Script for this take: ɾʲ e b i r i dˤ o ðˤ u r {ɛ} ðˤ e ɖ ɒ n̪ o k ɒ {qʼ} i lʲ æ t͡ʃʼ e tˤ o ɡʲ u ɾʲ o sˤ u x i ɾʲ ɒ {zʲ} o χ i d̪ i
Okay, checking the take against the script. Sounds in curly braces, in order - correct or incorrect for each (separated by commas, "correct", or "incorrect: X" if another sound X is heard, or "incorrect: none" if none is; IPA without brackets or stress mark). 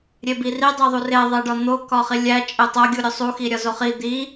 incorrect: e, incorrect: χ, incorrect: z